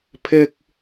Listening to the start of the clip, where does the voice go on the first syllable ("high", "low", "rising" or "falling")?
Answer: high